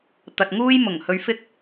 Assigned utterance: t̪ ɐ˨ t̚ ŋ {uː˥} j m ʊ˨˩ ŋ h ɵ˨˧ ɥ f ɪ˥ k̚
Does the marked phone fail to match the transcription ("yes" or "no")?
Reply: no